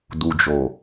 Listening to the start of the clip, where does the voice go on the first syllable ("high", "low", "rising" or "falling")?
low